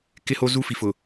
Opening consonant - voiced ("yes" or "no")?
no